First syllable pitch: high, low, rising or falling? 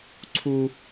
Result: high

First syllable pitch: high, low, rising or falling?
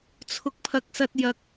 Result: high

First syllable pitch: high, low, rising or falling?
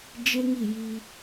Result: high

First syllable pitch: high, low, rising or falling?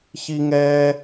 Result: high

